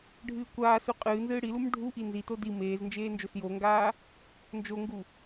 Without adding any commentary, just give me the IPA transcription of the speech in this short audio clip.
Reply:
ɖʱ ɨː kʷ aː s u qʼ ɨː n z ɨː ɽ i l u m ɖʱ u ʔ i n z i t o d i m eː z n d͡ʒ eː n d͡ʒ o s j o ŋ ɡ aː | n d͡ʒ o ŋ ɡ u

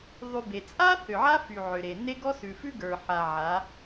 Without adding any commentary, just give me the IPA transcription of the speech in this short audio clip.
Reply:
ðˤ y˧ b e˨ t͡sʼ a˦ θ ʏ˨ ʕ a˦ f y˨ ʕ ʏ˨ ɾ e˨ n e˦ ɡ ɔ˦ s ʉ˨ f ʉ˦ ɡ ə˞˨ ħ a˨ ʕ a˨˦

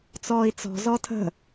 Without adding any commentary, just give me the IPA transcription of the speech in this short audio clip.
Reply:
t͡s ɔː i̯ t͡s ɔ̤ z ɔ tʰ ə̤

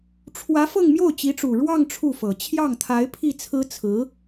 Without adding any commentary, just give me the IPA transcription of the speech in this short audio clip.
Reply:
ʈ͡ʂʰ w ä˧˥ f ɤ˥˧ ŋ m j o˥˩ ʊ̯ t͡ɕ i˧˥ ʈ͡ʂ u˨˩ ɻ w ɑ˥˧ ŋ ʈ͡ʂʰ u˥˩ f ɤ˨˩ t͡ɕʰ j ɑ˥˩ ŋ t̪ʰ a˧˥ ɪ̯ pʰ i˥˩ t͡sʰ ɹ̩˥ t͡sʰ ɹ̩˧˥

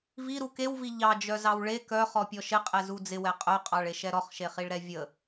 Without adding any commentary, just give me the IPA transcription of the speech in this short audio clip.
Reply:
v i ɾ u k e w v i ʎ ɑ d͡ʒ œ z ɑ w ɭ e k œ χ ɔ pʲ ɔ ʃ ɪ qʼ ɛ z u d͡z ɪ w ɛ qʼ œ qʼ ɑ ɭ e ʃ ɛ ɾ ɔ χ ʃ e χ i ɭ ɾ ɛ vʲ ə

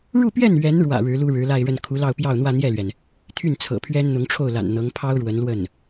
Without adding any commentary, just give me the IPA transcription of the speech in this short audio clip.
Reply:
ɻ u˥˧ p ɥ ɛ˥˩ n ɥ ɛ˧˥ n ɻ w ä̰˨˩ ɻ ɻ̩˧˥ l u˥ ɻ ɻ̩˧˥ l a˥˧ ɪ̯ ɻ ə˥˩ n kʰ u˧˥ l ɑ˥˧ ʊ̯ p j ɑ˥˧ ʊ̯ n̪ w ä˥˧ n̪ j ɛ˥˩ l ɥ ɛ˩ n | t̪ʰ y˥˩ n t͡sʰ ɤ̰˨˩ pʰ ɥ ɛ˥ n n̪ ʊ˧˥ ŋ ʈ͡ʂʰ o˥˩ ʊ̯ l a̰˨˩ n n̪ ɤ˧˥ ŋ pʰ ɑ˥ ʊ̯ ɻ w ə˧˥ n l w ə˥˩ n

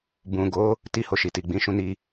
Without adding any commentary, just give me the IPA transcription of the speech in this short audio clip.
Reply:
b ũ˨ ɡ o˨˦ | t i˦ h o˧ ʃ i˨ t i˨ ɡ͡b ĩ˨˦ ʃ ũ˧ n i˧

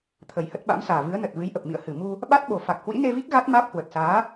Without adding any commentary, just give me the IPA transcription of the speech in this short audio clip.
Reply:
t̪ʰ ə˨˩ j h ə˦˥ t̚ ɓ a̰˧˥ m s aː˨˩ v ɨ˨˦ ə̯ n ə˨˩ t̚ v ɨ˨˦ j ʔ ə˨˩ p̚ m ḭ˧˨ ə̯ h ɨ˧˩ m u˧ | ɓ a˦˥ t̚ ɓ o˨˩ f a˨˩ k̚ h w ḭ˧˥ n e˧ v i˦˥ k̚ ɣ a˦˥ t̚ m aː˦˥ p̚ h w ə˨˩ t̚ s aː˨˦

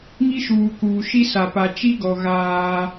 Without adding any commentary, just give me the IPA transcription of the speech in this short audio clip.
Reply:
ŋ i˦ ʃ uː˨ k uː˨ ʃ i˦ s a˨ p a˨ t͡ʃ i˦ ɡ ɔ˨ ɣ aː˦

